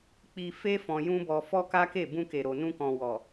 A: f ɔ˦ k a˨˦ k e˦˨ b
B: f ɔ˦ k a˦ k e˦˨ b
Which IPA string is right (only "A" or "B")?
B